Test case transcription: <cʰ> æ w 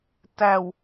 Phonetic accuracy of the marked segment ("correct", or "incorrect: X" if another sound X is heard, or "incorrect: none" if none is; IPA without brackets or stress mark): incorrect: t